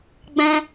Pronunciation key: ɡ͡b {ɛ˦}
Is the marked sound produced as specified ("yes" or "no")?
no